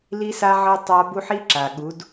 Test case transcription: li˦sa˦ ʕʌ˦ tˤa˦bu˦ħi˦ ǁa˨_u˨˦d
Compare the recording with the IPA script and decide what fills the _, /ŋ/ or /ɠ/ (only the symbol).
ɠ